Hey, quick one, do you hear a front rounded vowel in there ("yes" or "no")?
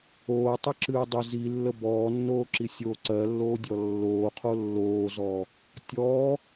no